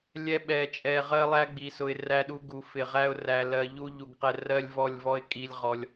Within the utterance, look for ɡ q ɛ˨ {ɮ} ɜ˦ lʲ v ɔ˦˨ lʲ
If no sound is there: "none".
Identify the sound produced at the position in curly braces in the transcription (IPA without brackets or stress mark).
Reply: r